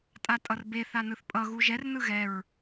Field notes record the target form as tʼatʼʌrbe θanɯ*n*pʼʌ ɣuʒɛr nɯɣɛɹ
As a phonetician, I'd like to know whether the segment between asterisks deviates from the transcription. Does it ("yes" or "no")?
yes